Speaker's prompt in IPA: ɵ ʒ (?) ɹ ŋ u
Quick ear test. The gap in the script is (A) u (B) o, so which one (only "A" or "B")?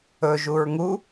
A